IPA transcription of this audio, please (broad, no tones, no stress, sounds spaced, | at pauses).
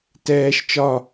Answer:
t ɛː ʃ t͡ʃ ɒ